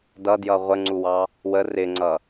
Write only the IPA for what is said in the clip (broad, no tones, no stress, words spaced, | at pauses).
dʌdjʌ ʁʷəŋ͡ǀuwɑ | wə rɪŋ͡ǀʌ